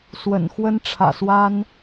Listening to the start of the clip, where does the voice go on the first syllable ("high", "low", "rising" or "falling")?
low